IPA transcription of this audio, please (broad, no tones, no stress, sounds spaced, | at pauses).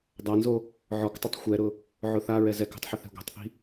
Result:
dˤ a n z o | ʕ ɔ k tˤ ɪ tˤ xʷ ɛ ɾ ʊ | ʕ ʊ θ a ɹ ɛ z ɛ k o̤ tˤ ħ ɪ θ ɛ̤ ɡʷ ɛ̤ tˤ θ i̤